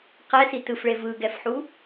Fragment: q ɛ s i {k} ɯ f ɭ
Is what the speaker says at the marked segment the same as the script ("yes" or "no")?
no